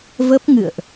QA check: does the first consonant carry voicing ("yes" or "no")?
yes